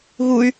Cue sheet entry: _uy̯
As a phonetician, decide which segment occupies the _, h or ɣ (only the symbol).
ɣ